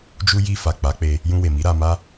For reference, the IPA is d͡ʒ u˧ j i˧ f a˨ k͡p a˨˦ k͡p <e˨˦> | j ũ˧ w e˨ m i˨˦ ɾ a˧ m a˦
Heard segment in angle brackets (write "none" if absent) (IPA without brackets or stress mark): e˧